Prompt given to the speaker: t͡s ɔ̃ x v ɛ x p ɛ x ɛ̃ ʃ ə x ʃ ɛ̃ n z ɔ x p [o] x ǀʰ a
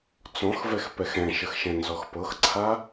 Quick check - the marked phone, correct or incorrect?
incorrect